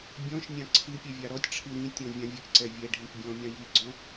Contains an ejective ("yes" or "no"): no